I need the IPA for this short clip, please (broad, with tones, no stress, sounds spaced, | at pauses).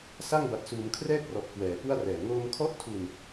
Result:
s a˥˩ ŋ b a˨˩ t̚ s uː˩˦ m kʰ r ɛː˥˩ k̚ r ɔ˨˩ ʔ k w ɛː˩˦ p u˥˩ a̯ r ɛː˨˩ ŋ oː˧ m kʰ ɔ˦˥ ʔ tʰ u˧ n